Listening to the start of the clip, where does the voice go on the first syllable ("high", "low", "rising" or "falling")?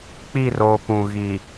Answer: falling